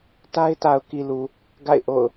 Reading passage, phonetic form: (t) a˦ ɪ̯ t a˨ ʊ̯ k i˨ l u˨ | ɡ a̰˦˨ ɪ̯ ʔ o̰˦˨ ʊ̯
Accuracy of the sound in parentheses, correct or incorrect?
correct